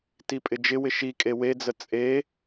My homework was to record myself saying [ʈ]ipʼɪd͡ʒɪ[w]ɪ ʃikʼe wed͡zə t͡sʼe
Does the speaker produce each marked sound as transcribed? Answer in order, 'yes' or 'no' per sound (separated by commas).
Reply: no, yes